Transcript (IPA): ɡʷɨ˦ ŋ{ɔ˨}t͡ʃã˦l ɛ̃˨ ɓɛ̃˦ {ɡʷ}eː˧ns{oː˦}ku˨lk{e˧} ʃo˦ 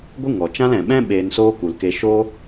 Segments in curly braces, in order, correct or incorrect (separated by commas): correct, incorrect, correct, correct